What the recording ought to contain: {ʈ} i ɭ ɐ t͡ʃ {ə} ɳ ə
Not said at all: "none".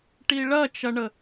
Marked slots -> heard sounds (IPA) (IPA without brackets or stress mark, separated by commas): ʈ, ɐ